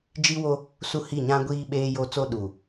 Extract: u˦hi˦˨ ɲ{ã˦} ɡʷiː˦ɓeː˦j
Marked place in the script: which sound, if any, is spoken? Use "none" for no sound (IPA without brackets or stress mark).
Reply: ã˦